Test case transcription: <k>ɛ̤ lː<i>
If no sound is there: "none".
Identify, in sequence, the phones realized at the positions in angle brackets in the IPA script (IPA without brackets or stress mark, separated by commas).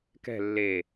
k, e